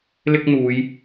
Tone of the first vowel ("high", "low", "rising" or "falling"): high